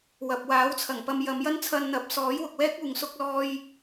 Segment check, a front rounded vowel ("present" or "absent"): absent